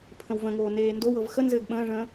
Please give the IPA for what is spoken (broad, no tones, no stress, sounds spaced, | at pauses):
pʰ ə̃ w v ə̃ ŋ oː n eː n d o w ɤ v x ə n z ɘː ɡ ɓ ə̃ː ʐ ə̃ː